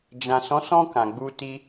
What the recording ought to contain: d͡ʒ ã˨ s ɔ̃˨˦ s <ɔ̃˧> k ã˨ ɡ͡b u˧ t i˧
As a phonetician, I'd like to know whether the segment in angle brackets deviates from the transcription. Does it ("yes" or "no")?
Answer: no